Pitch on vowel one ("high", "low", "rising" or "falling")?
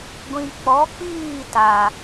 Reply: low